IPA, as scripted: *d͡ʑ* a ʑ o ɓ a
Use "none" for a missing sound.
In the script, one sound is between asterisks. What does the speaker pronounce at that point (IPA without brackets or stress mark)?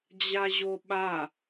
d͡ʑ